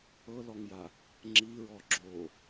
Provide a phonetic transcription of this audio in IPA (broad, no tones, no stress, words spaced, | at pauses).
ɤlɔŋja | ŋ͡ǁiɹɔ ɡ͡ǁo